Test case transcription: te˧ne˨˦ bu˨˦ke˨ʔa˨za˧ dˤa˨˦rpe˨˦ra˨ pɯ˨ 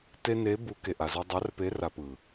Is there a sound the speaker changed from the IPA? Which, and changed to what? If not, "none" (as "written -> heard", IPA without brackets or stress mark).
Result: none